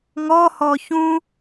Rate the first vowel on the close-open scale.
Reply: mid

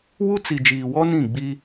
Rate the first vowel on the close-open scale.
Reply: close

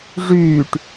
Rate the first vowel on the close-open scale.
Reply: close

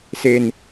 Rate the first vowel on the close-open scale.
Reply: mid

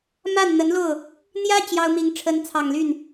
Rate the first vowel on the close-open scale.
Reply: open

